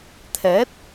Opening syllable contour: rising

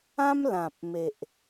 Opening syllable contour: high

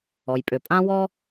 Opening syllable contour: low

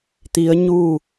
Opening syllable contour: rising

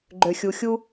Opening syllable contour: low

